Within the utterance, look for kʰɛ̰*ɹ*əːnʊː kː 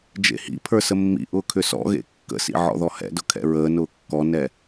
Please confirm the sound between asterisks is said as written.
yes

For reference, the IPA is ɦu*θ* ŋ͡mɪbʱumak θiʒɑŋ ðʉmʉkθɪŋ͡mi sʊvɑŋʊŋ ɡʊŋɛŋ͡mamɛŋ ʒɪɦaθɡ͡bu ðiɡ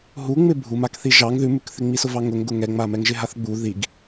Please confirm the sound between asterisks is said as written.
no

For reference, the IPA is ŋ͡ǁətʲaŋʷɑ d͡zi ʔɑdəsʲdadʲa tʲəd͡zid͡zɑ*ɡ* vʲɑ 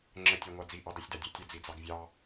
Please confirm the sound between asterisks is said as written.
yes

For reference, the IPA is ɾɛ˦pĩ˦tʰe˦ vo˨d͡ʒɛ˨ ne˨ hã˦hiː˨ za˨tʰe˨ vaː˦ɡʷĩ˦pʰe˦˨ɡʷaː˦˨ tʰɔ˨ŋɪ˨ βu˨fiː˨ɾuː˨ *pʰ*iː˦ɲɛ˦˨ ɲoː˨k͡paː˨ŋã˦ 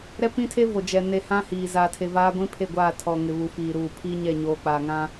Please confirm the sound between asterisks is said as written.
yes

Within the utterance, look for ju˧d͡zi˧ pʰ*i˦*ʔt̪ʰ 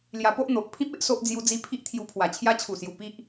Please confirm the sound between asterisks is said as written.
yes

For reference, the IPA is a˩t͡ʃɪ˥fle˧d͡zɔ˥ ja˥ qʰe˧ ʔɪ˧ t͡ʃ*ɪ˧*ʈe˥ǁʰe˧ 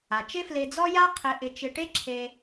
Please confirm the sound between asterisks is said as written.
yes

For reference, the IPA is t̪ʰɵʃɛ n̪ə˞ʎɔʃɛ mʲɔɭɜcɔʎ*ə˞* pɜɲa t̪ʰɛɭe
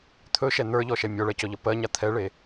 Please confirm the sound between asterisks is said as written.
no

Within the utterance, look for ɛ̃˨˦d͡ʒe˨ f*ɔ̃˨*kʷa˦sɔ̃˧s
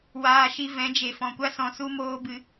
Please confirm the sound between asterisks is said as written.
yes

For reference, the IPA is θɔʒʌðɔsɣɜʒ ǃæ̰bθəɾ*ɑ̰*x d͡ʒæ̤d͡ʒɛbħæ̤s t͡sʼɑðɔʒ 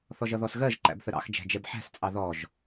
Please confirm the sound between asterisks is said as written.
yes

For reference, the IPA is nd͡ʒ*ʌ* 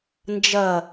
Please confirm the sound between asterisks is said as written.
yes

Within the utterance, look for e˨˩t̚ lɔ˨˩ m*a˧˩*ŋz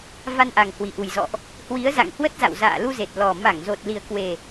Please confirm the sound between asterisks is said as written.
yes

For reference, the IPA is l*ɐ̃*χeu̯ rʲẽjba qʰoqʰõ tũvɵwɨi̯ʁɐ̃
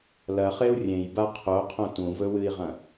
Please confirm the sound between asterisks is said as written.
no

